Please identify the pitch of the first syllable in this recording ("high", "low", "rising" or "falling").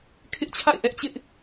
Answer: high